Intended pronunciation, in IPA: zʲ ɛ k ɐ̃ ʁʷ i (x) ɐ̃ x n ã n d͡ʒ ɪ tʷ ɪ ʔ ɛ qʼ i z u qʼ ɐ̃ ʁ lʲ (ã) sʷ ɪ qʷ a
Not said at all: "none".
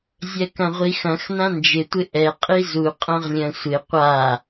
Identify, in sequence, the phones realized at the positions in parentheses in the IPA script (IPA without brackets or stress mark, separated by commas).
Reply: x, ɐ̃